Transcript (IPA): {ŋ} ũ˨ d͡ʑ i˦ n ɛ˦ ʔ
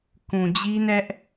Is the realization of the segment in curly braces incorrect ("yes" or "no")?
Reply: yes